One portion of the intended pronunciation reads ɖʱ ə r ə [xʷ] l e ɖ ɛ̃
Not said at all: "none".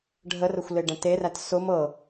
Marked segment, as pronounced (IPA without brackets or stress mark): xʷ